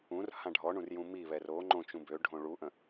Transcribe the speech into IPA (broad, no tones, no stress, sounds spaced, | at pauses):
ũ r h ã ɖʱ ɔ ɳ ũ r j ũ m i β ɛ r o ŋ͡ǃ õ t͡ʃ ũ b ø ɖʱ õ ɭ u ʔ ə̃